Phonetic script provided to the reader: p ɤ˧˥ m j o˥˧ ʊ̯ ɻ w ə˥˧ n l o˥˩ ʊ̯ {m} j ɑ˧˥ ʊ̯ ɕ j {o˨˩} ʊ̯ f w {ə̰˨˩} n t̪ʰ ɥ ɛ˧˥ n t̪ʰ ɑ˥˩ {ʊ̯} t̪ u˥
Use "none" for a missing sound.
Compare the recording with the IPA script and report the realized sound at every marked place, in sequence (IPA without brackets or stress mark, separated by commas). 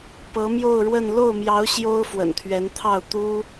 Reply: m, o˥, ə̰˨˩, ʊ̯